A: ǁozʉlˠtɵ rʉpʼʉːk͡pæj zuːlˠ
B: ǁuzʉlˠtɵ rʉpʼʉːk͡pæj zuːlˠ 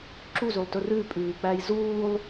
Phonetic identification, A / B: B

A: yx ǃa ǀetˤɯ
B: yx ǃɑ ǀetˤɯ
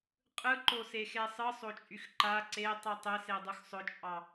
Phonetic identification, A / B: A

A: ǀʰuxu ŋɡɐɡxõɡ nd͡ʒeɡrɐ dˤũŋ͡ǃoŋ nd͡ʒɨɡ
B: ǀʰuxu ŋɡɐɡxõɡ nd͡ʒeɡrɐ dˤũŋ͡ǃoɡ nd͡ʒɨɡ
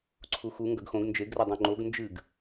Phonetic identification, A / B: B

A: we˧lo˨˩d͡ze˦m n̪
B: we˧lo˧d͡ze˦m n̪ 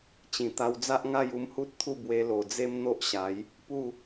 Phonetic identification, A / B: A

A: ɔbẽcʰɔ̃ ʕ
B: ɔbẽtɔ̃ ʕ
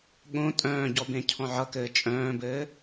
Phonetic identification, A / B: A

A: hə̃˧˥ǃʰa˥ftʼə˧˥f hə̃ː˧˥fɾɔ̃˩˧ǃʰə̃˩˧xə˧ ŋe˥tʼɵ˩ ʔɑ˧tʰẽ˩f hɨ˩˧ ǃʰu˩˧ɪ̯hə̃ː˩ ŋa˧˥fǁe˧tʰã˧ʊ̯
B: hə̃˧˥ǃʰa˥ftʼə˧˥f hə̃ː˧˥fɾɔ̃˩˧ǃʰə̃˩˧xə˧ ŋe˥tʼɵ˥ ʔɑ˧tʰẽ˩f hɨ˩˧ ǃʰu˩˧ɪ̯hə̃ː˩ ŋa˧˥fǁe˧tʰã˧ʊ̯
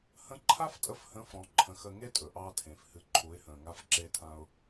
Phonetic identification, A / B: A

